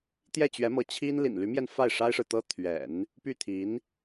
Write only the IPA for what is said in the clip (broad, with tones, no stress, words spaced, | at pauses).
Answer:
t̪jɛ˥˩t͡ɕɥɛ˧˥mɤ˧˥ t͡ɕʰi˥n lḭ˨˩nly˧˥mjɛ˧n fa˥˩ɪ̯ ʂa˥ɪ̯ʂɻ̩˨t̪ɤ˥ t̪ʰɥɛ̰˨˩˦n | py˥˩t̪ʰi˧˥n